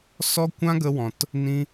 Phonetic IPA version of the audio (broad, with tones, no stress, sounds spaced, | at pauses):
s ɔ˦ kʷ ã˦ ɡ ə˧ w ɔ̃˨ t | n ĩ˧